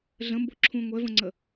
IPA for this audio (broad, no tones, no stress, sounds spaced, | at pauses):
ɮ ə̃ m b o ǁʰ ũ ŋʷ ɛ v ə̃ ŋ͡ǀ ə